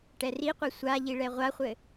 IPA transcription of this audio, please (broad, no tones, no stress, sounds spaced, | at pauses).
ʈ ɛ r i qʷ e sʷ a ʎ i ɭ ɛ ʁʷ a χʷ ɘ